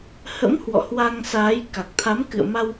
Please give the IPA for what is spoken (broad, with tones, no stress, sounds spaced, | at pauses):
h ə̰˧˥ m h w ɔ̰˧˨ h w a˧ ŋ s aː˨˦ j k a˨˩ k̚ t̪ʰ a˨˦ m k ɨ̰˧˨ ə̯ m a˧ w